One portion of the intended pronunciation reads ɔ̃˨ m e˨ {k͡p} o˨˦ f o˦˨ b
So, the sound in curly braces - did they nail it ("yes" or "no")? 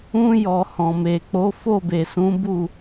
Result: yes